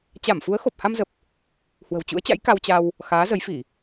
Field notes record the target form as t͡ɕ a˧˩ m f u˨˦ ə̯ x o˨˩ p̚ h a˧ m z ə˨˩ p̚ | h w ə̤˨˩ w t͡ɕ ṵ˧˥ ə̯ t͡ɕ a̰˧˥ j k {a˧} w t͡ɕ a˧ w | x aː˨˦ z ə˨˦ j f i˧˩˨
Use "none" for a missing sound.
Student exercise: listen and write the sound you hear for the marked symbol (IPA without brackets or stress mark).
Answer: a˧